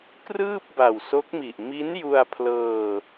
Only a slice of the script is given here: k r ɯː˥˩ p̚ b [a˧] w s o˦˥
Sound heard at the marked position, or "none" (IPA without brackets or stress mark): a˨˩